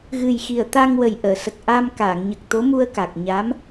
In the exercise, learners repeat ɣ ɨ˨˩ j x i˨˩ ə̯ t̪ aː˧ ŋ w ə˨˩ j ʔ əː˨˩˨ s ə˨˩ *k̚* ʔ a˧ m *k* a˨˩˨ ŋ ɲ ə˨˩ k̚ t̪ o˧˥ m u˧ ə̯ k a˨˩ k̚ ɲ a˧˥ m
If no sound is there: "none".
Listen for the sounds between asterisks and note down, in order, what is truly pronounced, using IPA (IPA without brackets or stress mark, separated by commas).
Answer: k̚, k